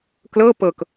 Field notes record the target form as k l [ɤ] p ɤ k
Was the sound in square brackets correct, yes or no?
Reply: yes